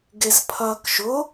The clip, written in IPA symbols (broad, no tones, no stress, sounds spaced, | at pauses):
ɡ e z pʰ ɐː k ʃ ʊ